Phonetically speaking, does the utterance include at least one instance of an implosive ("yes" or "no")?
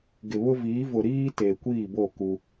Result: no